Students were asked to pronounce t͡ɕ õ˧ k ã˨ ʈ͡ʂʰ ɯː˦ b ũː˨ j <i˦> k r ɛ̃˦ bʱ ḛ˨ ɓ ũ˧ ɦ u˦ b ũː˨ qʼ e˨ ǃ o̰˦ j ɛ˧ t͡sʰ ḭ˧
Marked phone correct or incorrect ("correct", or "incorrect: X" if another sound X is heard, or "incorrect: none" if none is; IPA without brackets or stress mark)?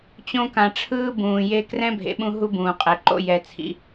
incorrect: e˦